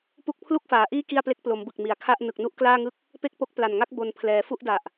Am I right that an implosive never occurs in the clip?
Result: yes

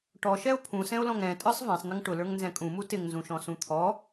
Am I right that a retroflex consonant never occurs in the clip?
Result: no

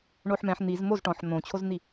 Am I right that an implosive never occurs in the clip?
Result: yes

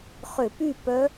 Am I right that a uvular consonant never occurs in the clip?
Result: no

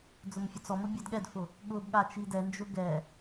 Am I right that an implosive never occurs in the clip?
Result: no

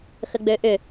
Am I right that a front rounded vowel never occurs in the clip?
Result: no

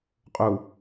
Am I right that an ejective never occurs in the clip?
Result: no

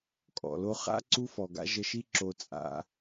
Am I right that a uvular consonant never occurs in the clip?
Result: no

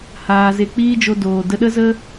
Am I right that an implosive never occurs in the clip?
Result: no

